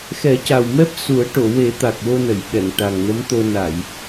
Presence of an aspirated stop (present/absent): absent